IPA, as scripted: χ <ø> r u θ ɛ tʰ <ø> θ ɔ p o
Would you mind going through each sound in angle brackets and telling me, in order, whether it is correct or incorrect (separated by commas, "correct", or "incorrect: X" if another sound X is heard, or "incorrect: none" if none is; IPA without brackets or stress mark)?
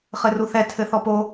incorrect: ɘ, incorrect: ɘ